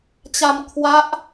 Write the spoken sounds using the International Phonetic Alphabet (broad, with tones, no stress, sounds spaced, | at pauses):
t͡ɕ a˧ m kʰ w a˦˥ ʔ